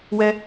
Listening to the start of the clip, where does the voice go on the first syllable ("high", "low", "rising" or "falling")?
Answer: high